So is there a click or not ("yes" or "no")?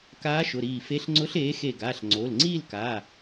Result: yes